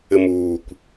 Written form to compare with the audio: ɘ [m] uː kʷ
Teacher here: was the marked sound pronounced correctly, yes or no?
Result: yes